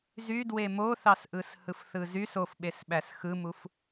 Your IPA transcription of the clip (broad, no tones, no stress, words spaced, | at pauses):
zydwe moθɑsʔɯshɯf θɯzys ofɓesɓæs xɯmuf